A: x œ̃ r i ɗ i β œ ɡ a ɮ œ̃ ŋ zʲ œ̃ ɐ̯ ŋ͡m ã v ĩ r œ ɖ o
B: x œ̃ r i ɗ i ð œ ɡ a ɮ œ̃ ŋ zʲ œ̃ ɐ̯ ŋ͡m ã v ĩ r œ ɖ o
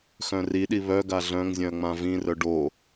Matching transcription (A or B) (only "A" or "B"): A